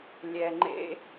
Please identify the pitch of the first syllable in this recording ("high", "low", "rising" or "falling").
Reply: low